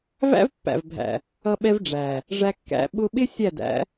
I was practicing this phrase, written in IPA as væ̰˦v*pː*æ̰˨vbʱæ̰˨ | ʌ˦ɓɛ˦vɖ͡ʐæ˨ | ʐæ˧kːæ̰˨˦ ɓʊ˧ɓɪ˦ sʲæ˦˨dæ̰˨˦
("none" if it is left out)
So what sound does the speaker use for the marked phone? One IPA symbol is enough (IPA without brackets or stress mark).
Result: pː